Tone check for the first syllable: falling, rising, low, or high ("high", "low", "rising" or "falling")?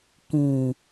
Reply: low